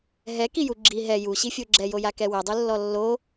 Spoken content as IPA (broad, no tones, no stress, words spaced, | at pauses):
ɦɛkiju ɡ͡ǁi ɦɛ juɕifʲo ɡ͡ǁɛjojakɛ wɛdˤulːɔ lːo